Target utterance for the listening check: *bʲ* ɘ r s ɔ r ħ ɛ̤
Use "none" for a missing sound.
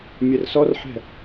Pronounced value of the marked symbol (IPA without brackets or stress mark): mʲ